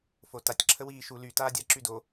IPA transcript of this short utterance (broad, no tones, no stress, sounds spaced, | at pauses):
f o t a tʲ ǁʰ ə w iː ʃ u l y t aː dʲ a ǁ y d o